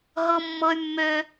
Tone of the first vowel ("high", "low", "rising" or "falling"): high